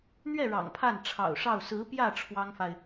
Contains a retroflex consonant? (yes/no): yes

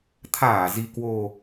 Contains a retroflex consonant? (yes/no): no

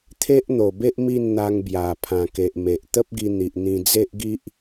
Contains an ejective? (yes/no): no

